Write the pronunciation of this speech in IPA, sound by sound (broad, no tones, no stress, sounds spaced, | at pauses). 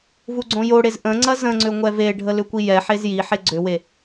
v u ɡ͡ǀ õ j o ɽ e z ʔ ə̃ ŋ͡ǀ ɐ z ə̃ ŋ͡ǀ ʏ ŋʷ ɛ v e ɖʱ ə l ʏ kʷ i j ɛ ħ e z j i ħ e ɡ͡ǀ ʏ w e